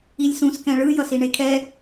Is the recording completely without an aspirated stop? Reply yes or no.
no